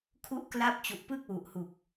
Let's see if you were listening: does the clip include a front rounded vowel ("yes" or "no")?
no